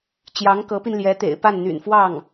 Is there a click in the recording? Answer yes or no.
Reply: no